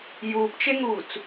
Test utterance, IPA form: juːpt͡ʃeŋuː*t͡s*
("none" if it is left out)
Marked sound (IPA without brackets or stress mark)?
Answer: t͡s